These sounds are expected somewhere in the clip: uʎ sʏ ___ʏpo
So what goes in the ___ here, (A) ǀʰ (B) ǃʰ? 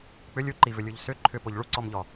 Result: B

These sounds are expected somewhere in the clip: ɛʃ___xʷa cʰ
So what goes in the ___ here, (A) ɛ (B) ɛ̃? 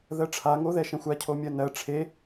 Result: B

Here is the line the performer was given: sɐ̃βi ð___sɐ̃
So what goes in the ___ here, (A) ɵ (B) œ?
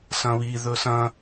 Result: A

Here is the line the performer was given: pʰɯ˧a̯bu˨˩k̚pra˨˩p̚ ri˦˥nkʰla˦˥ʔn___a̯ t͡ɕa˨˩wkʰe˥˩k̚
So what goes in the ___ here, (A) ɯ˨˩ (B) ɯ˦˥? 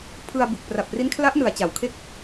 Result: A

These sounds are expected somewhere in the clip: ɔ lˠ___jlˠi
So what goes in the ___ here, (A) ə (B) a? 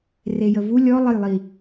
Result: A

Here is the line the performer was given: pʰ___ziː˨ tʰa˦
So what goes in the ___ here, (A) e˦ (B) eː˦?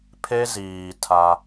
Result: A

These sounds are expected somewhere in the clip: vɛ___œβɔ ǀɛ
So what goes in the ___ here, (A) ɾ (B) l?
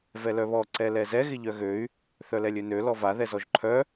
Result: B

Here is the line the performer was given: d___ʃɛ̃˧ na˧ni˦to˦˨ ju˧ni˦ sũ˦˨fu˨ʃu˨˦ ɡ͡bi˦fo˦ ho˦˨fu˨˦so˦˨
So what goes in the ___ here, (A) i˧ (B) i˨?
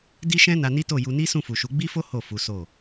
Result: A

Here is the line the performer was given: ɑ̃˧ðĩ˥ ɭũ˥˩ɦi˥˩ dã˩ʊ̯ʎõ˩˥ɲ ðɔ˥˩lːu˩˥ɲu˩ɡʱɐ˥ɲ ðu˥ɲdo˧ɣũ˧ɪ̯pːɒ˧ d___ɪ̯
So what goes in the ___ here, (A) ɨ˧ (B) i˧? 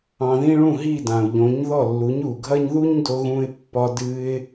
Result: A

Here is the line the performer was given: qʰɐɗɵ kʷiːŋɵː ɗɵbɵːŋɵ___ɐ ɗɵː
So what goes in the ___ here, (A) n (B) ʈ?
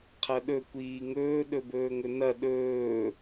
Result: A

